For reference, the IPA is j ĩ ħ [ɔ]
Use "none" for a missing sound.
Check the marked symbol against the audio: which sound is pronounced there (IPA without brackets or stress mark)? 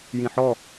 ɔ